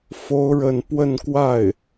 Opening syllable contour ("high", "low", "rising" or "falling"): high